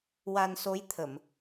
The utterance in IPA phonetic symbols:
w a˧ n s o˧˥ j t̪ʰ ə˨˩˨ m

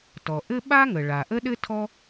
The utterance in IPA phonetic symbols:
t ɔ˩ ʔ ɘ˥ ɓ a˥ ŋ ə˩ ɭ a˩ ʔ ə˥ ɗ ɘ˥ tʰ ɔ˥

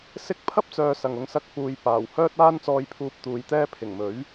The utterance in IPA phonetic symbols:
s ɪ˥ k̚ pʰ ɐ˥ p̚ t͡s œː˨ s ɐ˨˩ ŋ ʊ˧ ŋ s ɐ˧ k̚ f uː˨ j p aː˨˩ w h œː˥ t̚ aː˥ n t͡s ɔː˧ j pʰ uː˧ p̚ t̪ uː˨˧ j t̪ ɛː˥ pʰ ɪ˨˩ ŋ m ɵ˨˥ ɥ

